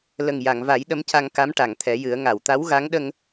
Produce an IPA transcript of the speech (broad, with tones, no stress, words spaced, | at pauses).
lə˨˩ŋja˨˩˨ŋva˨˩˦j ɗə˧˥mca˧ŋka˧˥m ʈa˨˩˨ŋt̪ʰɛ˨˩˦jɨ˨˩˦ə̯ ŋa˨˩˨wt̪a˧˥wɣa˧˥ŋɗə˧ŋ